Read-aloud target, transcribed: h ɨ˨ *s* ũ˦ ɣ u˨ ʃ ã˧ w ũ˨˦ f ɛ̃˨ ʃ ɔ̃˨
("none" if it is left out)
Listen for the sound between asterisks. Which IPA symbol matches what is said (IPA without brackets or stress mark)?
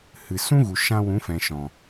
s